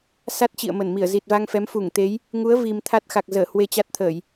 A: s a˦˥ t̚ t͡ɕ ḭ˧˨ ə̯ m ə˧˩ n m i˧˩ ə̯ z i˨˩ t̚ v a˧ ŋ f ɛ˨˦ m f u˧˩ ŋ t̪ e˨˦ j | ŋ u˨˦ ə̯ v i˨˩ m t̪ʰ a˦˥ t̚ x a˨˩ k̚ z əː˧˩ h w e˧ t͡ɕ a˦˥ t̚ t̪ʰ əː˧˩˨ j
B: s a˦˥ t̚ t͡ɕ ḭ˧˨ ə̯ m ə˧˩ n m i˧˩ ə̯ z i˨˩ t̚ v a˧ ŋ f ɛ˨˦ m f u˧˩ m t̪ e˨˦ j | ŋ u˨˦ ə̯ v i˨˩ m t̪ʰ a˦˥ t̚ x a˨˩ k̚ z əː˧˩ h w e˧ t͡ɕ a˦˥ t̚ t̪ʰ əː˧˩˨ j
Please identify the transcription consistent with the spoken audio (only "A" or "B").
A